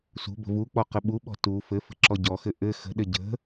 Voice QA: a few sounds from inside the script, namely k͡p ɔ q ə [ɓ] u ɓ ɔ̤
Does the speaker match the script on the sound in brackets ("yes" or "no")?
yes